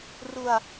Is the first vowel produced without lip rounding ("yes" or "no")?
no